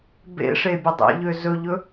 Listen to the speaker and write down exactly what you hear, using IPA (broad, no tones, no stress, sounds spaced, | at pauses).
b ḛ ʂ e bʲ ə dˤ ḛ ʎ ø z ɵ ʎ ɵ